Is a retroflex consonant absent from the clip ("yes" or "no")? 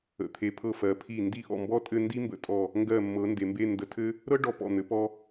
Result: no